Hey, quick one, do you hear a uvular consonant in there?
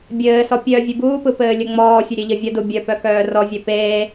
no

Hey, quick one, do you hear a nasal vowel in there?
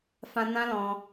yes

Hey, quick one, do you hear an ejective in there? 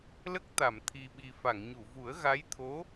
no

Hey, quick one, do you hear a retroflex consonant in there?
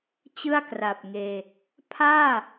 no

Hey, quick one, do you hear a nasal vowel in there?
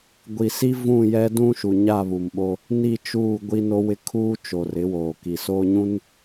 yes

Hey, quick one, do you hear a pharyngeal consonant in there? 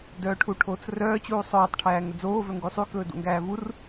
no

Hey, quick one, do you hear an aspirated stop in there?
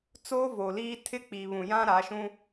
yes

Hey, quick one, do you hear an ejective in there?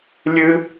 no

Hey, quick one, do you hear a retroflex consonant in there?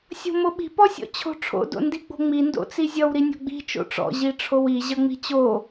yes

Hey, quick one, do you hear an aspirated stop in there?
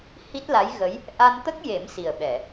no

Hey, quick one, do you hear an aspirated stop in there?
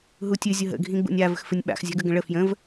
no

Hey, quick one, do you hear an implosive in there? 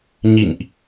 no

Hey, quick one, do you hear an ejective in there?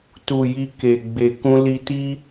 no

